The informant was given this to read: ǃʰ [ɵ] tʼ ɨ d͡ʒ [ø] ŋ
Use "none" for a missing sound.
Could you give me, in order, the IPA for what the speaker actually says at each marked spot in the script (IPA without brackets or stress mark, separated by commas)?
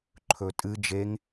ɵ, e